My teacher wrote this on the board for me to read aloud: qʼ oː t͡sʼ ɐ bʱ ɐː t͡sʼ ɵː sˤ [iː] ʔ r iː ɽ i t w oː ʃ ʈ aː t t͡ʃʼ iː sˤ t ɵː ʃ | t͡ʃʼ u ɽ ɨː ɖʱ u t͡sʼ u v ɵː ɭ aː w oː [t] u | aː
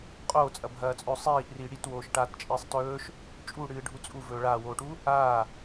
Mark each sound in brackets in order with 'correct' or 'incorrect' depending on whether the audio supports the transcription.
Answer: correct, incorrect: ʈ

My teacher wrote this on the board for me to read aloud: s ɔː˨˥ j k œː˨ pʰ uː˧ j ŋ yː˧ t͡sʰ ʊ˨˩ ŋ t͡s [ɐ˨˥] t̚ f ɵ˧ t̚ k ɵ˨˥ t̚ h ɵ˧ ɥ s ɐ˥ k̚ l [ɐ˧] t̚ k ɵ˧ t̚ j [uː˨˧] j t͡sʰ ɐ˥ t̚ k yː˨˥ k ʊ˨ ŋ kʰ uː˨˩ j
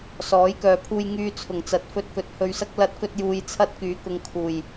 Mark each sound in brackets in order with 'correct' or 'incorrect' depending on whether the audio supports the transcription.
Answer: correct, correct, incorrect: uː˨

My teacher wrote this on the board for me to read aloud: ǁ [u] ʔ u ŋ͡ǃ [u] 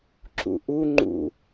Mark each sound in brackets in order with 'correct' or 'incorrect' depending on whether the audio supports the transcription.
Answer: incorrect: ṵ, incorrect: ṵ

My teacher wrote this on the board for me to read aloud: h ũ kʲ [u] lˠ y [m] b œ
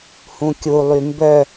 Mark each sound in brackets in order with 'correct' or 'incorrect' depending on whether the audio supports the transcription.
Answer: correct, correct

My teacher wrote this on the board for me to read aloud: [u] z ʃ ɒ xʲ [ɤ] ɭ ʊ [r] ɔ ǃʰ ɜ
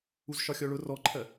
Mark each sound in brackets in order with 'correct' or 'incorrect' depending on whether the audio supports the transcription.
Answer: correct, incorrect: ɔ, correct

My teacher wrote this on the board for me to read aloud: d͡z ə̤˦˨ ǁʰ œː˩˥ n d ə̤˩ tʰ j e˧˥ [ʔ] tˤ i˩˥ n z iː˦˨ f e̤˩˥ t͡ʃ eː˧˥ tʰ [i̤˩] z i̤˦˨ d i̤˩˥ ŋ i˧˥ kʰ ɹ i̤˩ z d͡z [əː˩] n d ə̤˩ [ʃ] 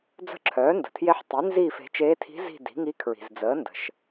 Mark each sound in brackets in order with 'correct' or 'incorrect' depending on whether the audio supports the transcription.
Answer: incorrect: ħ, incorrect: i̤˧˥, incorrect: əː˩˥, correct

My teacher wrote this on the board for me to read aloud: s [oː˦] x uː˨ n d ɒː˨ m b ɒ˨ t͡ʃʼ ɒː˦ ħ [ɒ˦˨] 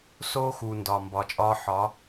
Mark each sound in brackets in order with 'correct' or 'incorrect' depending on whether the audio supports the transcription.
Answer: correct, incorrect: ɒ˨˦

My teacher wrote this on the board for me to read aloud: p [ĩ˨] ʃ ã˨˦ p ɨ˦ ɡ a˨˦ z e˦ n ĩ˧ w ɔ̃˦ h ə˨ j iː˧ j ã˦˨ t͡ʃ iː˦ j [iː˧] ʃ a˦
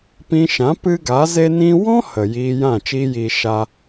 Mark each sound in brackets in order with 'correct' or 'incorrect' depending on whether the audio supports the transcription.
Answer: incorrect: ĩ˧, correct

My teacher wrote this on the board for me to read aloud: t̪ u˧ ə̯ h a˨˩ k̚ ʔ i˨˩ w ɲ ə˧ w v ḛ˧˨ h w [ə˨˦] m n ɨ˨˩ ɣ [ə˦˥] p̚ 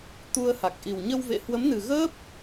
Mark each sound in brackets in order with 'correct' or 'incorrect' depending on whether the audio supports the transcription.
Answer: correct, incorrect: əː˦˥

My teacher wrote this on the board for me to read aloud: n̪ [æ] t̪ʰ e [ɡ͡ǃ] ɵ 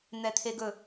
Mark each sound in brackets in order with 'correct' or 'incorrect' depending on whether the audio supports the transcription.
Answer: incorrect: ɛ, incorrect: ɡ

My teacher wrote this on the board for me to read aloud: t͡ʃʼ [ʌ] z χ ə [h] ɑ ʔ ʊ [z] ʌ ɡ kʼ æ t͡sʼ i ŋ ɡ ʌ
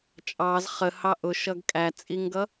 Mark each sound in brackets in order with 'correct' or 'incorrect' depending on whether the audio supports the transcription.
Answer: incorrect: ɑ, correct, incorrect: ʃ

